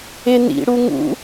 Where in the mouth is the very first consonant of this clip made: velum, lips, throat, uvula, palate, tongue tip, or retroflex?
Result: tongue tip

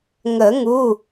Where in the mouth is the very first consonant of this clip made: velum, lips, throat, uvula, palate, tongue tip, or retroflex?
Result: velum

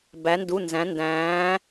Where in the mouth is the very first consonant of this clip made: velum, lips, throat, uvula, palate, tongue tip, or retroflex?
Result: lips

